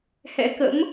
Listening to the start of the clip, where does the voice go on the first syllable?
rising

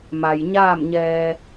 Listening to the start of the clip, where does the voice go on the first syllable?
low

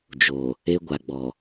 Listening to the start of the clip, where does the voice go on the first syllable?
low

